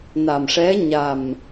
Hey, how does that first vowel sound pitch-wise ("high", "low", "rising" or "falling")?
low